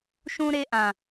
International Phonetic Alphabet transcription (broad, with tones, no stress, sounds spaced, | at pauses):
ʃ ũ˦ ɾ e˦ ʔ ã˨